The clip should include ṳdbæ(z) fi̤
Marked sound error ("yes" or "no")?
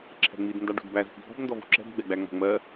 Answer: no